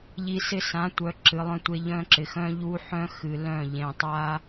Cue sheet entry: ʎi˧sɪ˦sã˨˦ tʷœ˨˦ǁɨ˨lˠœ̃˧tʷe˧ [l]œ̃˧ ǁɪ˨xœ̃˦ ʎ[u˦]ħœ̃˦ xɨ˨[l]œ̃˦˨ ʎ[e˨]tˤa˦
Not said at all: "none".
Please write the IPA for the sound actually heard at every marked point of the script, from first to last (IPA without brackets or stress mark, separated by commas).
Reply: ʎ, u˦, l, ẽ˨